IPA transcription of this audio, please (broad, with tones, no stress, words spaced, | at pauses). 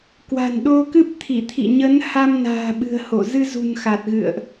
kwa̤˨˩nɗo˧kɨ˦˥p̚t̪ʰi˧˩ t̪ʰḭ˧˨ɲə˨˦n ha˧mna̤ː˨˩ɓɨ̤˨˩ə̯ho˧˩ zɨ˧zṳ˨˩n xa˨˩t̚ɣɨ̰˧˨ə̯ʔ